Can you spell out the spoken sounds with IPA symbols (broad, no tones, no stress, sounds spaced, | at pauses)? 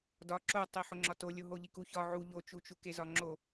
d ɒ ǁ o tˤ i ħ o ŋ͡ǁ ɒ t o lʲ o ɦ o ʎ i k u ç ɒ ʕ u ʎ o t͡ʃ u t͡ʃ u k e z ɒ ŋ͡ǁ o